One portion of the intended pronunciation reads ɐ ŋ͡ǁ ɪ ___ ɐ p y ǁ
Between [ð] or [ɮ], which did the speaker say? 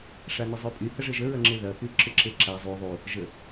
ð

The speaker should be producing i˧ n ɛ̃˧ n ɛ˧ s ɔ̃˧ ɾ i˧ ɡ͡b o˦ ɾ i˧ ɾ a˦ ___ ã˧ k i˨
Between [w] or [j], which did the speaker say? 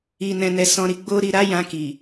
j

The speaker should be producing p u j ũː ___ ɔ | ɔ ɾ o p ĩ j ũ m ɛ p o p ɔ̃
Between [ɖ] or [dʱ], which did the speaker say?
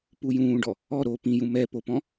ɖ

